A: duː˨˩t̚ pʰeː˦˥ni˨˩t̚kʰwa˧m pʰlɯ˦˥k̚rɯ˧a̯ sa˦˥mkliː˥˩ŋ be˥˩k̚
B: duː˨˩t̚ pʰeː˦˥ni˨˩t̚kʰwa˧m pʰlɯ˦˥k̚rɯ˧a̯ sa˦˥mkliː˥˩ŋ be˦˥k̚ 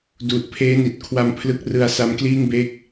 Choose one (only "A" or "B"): B